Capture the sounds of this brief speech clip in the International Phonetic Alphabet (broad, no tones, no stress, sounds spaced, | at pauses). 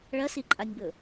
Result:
ɭ ɐ s i ǃʼ a nʲ b ɵ